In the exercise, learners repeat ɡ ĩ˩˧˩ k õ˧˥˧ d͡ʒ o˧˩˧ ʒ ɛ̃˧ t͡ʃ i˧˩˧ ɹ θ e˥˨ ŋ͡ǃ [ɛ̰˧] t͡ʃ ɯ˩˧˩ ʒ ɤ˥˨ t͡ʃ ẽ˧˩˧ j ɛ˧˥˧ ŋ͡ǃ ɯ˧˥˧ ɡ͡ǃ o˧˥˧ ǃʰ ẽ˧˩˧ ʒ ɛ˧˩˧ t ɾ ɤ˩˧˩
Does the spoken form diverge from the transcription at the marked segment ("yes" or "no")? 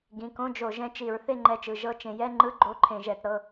yes